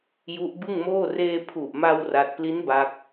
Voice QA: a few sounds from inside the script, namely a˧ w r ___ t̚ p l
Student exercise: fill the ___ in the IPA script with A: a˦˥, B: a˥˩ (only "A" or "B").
B